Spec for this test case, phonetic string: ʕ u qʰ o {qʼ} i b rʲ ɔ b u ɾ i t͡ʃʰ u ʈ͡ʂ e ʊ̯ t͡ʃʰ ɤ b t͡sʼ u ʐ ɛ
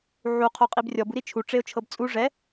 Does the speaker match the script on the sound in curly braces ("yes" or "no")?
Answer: yes